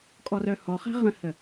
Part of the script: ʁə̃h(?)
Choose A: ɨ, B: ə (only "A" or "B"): B